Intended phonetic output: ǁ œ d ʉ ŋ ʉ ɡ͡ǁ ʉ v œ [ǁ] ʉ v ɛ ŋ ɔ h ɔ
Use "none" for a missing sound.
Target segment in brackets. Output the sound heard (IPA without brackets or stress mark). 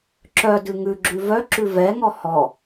ǁ